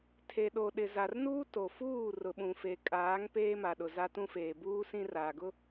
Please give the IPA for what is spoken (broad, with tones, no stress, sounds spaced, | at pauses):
tʰ e˨ ɗ o˨ ɗ ɪ˨ z a˨ r n uː˦ t o˨ f uː˦˨ r ʊ˨ ɓ ũ˨ f e˨ kʼ aː˨˦ ŋ p eː˦ m a˨ ɗ ʊ˨ z a˦ t ũ˦ f eː˨ b uː˦ s ĩ˦ r aː˨ ɡ ʊ˦